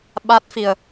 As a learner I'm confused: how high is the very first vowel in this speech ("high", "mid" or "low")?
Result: low